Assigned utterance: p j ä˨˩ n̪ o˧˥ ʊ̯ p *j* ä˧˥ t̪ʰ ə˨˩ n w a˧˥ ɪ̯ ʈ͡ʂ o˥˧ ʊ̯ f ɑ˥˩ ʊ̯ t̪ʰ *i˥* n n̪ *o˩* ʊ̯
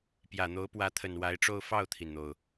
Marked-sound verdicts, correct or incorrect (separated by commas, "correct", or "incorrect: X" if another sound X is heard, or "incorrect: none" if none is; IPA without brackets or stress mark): incorrect: w, incorrect: i˩, correct